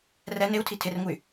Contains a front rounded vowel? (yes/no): yes